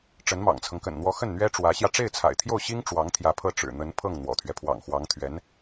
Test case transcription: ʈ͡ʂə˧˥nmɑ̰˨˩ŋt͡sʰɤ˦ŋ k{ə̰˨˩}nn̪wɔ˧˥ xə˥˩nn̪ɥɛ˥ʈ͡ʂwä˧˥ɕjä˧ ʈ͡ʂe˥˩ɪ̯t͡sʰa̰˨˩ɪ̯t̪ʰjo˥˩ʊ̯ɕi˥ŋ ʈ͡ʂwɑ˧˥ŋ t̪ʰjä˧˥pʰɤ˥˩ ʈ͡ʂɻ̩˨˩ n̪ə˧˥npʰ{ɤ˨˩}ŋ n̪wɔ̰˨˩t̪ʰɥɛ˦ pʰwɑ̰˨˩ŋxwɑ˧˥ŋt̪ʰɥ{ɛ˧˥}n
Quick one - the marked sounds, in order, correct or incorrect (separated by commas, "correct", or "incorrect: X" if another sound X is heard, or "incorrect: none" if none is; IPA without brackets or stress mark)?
correct, incorrect: ɤ˥˩, correct